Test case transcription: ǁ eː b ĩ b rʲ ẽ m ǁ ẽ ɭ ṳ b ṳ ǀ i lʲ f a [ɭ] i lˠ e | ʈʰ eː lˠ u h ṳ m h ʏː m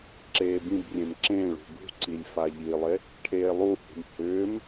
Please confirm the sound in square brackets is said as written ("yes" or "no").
no